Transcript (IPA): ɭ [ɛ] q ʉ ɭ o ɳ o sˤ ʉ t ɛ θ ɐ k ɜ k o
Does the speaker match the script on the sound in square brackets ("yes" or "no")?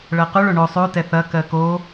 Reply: no